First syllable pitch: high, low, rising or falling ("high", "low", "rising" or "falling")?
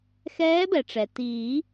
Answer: rising